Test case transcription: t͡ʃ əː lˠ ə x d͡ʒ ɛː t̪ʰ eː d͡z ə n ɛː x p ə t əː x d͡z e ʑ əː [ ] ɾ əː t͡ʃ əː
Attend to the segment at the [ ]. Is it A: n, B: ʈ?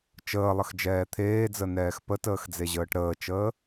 B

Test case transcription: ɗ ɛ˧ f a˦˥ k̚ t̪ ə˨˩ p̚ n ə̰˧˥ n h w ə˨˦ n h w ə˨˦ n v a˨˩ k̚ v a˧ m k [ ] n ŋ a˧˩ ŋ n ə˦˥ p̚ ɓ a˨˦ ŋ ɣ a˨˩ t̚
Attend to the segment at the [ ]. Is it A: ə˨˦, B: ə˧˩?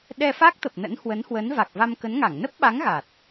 A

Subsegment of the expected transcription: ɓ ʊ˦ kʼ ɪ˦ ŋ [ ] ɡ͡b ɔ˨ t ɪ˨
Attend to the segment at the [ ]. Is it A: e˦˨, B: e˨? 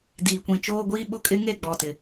A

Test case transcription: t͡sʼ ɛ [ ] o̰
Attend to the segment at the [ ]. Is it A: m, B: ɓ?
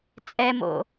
A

